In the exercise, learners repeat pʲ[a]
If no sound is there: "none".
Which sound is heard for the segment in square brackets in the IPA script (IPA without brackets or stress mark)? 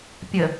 ə